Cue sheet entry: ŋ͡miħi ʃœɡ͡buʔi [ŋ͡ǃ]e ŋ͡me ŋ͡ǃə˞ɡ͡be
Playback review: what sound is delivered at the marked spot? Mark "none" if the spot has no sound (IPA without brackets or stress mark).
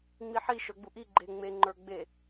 ɡ͡ǃ